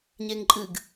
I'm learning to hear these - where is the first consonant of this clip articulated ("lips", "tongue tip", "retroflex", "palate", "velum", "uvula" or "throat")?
palate